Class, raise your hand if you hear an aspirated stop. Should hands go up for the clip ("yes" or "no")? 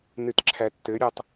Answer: yes